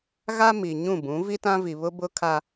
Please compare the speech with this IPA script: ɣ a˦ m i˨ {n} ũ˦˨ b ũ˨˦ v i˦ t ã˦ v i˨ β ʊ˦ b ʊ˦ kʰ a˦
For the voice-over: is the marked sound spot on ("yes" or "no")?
no